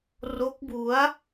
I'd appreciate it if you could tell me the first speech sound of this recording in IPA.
r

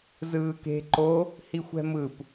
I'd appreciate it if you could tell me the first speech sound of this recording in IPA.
z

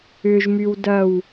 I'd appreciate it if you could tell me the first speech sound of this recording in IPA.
ʏ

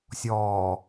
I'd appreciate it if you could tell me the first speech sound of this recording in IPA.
sʲ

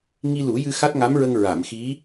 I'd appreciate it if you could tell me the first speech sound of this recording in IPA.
ŋ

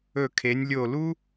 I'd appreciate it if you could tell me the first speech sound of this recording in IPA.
ɵ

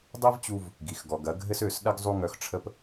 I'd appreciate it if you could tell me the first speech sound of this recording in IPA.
dˤ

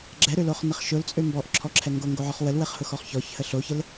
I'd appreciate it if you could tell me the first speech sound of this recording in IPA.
ɡ͡ǁ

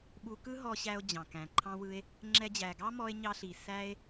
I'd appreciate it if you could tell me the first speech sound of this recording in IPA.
ɓ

